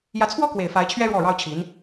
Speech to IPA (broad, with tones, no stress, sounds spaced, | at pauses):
j ä˧˥ t͡sʰ w ɔ˥ k w e˨˩ ɪ̯ f a˧˥ ɪ̯ t͡ɕʰ ɥ ɛ˥ ɻ w ɔ˥˩ ɻ ɑ˥ ʊ̯ t͡ɕʰ i˧˥ n